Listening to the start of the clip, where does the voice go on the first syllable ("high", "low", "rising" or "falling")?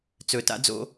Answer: low